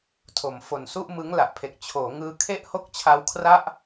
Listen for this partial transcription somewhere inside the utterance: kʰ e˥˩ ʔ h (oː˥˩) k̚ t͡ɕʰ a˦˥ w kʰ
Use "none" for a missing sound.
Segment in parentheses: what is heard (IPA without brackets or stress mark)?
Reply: o˥˩